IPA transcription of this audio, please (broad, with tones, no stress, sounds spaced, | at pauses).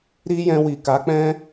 ɾ i˦ j ɛ̃˧ w i˨ k a˨˦ k͡p ɛ̃˦